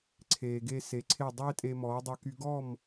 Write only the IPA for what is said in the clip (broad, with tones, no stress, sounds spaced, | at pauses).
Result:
ǀʰ eː˩ ɡ e˧ s e˩˥ ǀʰ e˥˩ dˤ eː˥ tʼ e˧ m ɔː˩˥ dˤ ø˧ k y˧ ɡ ɔ˥˩ m